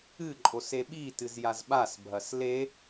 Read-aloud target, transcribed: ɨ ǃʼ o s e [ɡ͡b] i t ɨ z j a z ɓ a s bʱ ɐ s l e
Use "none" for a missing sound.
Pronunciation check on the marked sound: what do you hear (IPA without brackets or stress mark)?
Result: ɓ